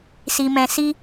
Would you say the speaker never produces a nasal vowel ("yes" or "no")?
no